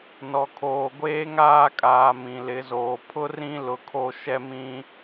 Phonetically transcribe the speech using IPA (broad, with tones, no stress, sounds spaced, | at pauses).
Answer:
n ɔ˨ kʰ oː˨ ɡʷ eː˦ ŋ aː˦ kʼ aː˨ m ĩ˨ l ɪ˨˦ z oː˨ pʰ ʊ˦ r ĩ˦ l ʊ˨ kʰ o˦ ʃ ɛ˦ m ĩ˦